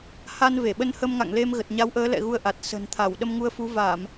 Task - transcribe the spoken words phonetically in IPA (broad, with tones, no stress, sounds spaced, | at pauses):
h a˧ n v e˧˩ ɓ ə˧ n h ə˧ m ŋ a̰˧˨ ŋ l e˧ m ɣ ə˨˩ t̚ ɲ a˨˦ w ʔ əː˨˦ l ɛ̰˧˨ ɣ u˧ ə̯ ʔ a˨˩ t̚ s ə̤˨˩ n t̪ʰ a˧˩ w ɗ ə˧ m ŋ u˧ ə̯ f u˨˦ v a˧˩˨ m